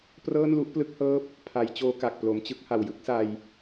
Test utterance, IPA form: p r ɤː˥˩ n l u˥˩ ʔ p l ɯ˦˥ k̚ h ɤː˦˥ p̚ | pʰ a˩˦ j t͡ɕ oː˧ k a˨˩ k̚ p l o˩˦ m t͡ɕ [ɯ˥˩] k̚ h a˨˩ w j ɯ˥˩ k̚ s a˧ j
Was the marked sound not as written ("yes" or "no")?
no